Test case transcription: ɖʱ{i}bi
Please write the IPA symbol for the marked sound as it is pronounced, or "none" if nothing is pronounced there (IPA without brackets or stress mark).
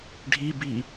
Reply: i